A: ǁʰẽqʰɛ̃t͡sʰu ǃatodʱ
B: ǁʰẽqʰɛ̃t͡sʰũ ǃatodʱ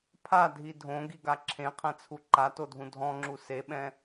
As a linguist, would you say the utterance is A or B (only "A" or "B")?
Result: A